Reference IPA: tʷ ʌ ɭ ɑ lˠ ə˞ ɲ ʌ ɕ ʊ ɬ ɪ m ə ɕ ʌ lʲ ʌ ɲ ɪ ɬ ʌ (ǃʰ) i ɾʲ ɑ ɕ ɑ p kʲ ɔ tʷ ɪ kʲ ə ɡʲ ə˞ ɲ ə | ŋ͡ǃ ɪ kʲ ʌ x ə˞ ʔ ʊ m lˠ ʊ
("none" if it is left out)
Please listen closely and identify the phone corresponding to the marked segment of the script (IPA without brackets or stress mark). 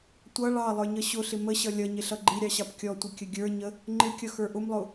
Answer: ɡ͡ǃ